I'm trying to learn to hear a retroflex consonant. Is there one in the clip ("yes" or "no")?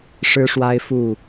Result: yes